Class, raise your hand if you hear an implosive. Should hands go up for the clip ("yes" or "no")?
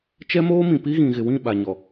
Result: yes